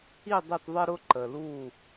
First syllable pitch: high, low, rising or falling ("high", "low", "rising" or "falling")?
falling